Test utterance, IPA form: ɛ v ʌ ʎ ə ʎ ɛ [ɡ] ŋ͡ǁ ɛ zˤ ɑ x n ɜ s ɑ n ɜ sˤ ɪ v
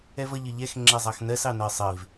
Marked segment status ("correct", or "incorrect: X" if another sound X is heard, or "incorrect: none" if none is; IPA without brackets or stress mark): incorrect: x